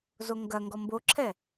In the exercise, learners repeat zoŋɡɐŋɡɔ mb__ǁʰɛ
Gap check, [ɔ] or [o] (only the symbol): o